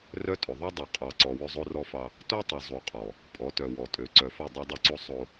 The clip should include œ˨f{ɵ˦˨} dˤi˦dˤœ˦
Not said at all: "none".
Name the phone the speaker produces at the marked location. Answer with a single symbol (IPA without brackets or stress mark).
ɵ˦˨